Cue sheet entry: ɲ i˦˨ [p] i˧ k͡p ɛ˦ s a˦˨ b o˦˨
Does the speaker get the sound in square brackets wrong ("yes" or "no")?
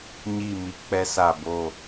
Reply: yes